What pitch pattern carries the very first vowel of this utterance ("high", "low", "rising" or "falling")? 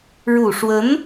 low